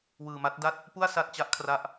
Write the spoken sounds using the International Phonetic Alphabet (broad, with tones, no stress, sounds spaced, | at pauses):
w ɯː˧ m a˦˥ t̚ d a˥˩ t̚ | p u˥˩ a̯ s a˥˩ t̚ t͡ɕ a˦˥ ʔ kʰ r a˦˥ ʔ